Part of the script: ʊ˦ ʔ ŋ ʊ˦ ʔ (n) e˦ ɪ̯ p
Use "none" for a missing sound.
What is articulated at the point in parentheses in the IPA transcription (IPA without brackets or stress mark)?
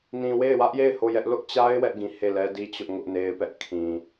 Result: n